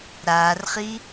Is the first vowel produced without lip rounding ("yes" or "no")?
yes